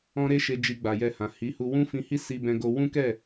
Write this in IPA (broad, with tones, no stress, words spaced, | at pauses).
ɔ̃˦ ɾe˦ʃe˧ d͡ʒi˧ɡ͡ba˨jɛ˧hã˨ hi˨˦hu˧ wũ˦fĩ˧hi˦ si˧bɛ̃˧ɡo˧ wũ˦kɛ˦˨